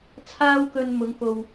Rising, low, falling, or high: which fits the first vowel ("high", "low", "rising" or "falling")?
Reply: high